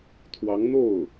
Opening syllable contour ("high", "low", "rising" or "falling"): rising